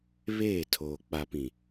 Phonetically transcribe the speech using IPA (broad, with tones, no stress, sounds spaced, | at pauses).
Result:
β eː˦˨ tʰ oː˨ k͡p a˨ p ĩ˨